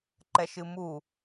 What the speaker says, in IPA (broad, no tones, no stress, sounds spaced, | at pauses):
ǃ ɛ ʃ ɨ m u